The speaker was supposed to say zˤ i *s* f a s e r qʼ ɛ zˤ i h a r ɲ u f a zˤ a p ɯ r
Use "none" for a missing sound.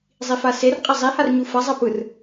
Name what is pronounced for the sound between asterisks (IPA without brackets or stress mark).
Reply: none